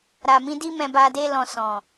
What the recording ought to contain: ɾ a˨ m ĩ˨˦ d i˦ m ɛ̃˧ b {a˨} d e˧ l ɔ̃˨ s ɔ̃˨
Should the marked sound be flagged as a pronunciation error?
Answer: no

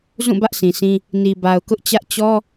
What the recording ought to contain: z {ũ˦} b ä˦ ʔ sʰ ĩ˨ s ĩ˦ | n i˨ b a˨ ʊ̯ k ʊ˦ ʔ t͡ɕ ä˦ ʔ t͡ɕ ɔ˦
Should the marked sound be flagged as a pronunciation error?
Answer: yes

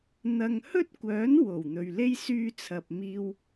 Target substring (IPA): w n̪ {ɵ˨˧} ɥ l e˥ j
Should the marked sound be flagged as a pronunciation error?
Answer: yes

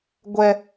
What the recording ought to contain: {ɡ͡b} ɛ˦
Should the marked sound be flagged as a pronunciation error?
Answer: yes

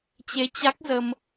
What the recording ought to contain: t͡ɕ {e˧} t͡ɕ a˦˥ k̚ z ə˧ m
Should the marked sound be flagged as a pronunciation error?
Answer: no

